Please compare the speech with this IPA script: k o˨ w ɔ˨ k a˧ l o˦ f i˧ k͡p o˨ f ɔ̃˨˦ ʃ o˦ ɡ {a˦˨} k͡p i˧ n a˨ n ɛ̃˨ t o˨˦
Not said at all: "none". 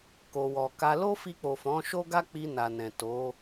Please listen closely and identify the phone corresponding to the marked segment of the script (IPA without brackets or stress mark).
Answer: a˦